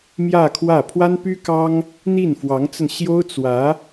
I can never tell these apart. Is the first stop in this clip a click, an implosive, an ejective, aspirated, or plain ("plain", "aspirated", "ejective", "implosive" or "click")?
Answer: aspirated